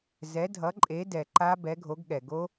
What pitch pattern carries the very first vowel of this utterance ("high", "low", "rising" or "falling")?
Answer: rising